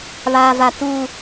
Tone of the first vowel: low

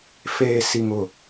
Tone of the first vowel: low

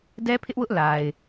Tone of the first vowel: high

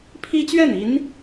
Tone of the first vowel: high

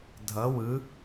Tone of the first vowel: rising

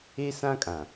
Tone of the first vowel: high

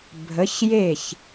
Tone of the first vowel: rising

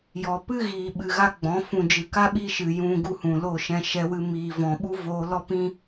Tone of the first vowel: low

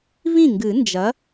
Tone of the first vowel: falling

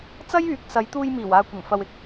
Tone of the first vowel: high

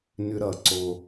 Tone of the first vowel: high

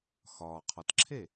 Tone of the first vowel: low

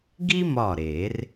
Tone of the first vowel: high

